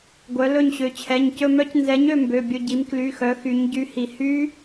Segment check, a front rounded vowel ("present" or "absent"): present